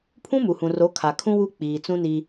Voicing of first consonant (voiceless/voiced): voiceless